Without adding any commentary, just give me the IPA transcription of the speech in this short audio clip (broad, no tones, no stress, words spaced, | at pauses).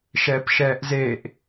ʃɛːpʃɛːʔzeʔ